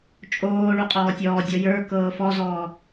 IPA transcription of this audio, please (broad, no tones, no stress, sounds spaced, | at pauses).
t͡ʃʼ oː ɭ u qʼ ɔː tʲ ɔː dʲ ɔ j ə˞ k ɤː f ɔ z ɔː